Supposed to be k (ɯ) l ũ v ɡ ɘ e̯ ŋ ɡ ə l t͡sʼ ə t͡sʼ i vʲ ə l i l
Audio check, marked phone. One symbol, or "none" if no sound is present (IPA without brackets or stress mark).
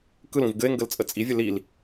ɯ